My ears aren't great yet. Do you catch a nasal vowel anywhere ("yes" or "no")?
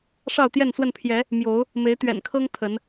no